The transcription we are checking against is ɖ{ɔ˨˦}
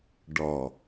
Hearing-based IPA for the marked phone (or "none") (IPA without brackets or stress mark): ɔ˨